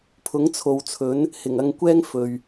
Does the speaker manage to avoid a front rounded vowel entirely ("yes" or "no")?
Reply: yes